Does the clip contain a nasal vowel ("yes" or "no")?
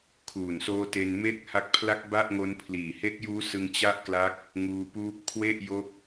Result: no